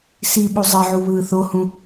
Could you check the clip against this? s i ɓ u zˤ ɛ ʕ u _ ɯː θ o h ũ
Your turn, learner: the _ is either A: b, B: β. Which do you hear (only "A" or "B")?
B